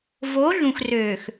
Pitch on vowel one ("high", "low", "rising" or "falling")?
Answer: rising